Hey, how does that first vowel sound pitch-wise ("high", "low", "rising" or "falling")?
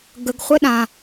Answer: low